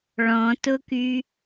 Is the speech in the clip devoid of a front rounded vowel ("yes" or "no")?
no